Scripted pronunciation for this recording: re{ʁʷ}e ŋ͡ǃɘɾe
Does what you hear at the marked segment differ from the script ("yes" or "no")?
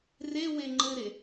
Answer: yes